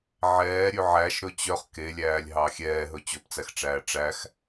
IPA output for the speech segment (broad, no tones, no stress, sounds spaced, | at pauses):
ʕ ɛː ɾʲ ʉ ʕ æ ʃ ɾ ɵ t͡ɕ œ χ k e lʲ æː lʲ ɦ ɑ xʲ ɛː ɦ ɵ t͡ɕ ɵ p t͡s æ x ʈ͡ʂ æː ʈ͡ʂ æ x